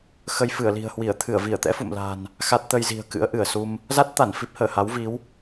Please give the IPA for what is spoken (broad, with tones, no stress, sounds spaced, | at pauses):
x ə˧ j f ɨ˧˩ ə̯ l i̤˨˩ ə̯ h w i˧˩ ə̯ t̪ʰ ɨ˧˩ ə̯ v i˧˩ ə̯ t̪ ɛ̰˧˥ f ṵ˧˨ m l a̤˨˩ n | x a˦˥ t̚ t̪ ə˧ j z i̤˨˩ ə̯ k ɨ̰˧˥ ə̯ ʔ ɨ˧˩ ə̯ s u˧ m | z a˦˥ t̚ t̪ a˧˩ n f i˦˥ p̚ h əː˧˩ h a˨˦ w v i˨˦ w